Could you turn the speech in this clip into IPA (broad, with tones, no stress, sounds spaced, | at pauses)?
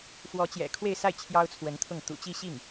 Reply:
f w ɔ˧˥ t͡ɕ j ɛ̰˨˩ kʰ w e˥˧ ɪ̯ s a˥˩ ɪ̯ t͡ɕʰ j ɑ˥ ʊ̯ t͡sʰ w ə˧˥ n t̪ʰ ʊ˥˩ ŋ t̪ ṵ˨˩ t͡ɕ i˥˧ ɕ i˥˩ ŋ